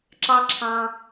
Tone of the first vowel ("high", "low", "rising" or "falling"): high